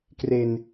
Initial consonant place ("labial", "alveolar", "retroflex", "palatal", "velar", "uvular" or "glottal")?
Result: velar